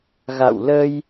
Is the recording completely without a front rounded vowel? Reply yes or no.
yes